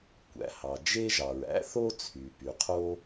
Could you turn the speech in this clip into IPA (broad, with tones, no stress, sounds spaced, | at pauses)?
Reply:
kʷ æ̰˩ h ɑ˩ d͡ʒ e˥ ʒ ɑ˩ ɹ æ̰˥ θ o˥ t͡sʰ y˩ p y˩ qʰ o˥